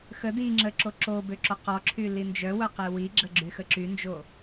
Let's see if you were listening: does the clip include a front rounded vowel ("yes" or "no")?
yes